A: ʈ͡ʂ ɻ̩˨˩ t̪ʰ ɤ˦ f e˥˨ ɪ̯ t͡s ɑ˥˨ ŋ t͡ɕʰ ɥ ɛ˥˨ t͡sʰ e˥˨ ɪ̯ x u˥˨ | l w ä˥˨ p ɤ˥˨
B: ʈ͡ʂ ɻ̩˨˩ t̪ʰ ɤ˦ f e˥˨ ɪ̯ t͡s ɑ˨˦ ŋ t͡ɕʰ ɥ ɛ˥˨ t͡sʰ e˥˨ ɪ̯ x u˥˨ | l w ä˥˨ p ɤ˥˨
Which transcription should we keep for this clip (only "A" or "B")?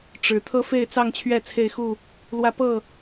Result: A